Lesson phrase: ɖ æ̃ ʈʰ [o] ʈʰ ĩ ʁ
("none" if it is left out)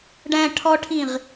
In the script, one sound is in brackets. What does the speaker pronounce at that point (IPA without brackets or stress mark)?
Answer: ɔ